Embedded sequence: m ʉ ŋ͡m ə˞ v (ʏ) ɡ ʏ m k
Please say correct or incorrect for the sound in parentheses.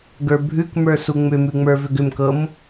correct